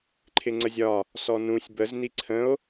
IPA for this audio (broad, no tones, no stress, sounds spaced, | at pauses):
ǃʰ ɪ ŋ͡ǀ ə zʲ ɒ | s ɔ n ũ sʲ b ə z n i ǀʰ ə̃ o̯